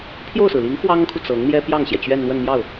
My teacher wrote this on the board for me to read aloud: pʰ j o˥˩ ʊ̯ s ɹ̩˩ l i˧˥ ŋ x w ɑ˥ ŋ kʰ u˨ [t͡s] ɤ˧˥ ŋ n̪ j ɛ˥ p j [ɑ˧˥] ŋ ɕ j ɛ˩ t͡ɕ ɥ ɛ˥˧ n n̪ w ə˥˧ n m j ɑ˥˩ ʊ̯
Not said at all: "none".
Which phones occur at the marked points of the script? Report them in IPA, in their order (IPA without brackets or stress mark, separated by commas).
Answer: t͡s, ɑ˥˩